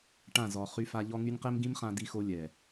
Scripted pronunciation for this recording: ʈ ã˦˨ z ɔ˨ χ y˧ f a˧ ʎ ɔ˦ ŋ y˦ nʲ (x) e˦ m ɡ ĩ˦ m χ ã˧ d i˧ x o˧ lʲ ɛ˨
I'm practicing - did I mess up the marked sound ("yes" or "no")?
yes